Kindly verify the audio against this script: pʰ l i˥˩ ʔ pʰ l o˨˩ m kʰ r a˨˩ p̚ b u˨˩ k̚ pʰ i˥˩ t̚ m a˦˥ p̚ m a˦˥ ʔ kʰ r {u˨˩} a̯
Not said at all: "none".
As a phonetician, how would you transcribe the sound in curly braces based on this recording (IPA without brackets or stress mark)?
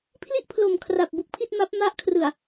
ɯ˨˩